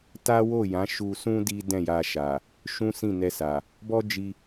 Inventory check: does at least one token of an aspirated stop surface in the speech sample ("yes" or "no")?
no